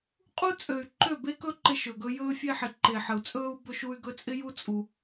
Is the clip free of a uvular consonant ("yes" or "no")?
no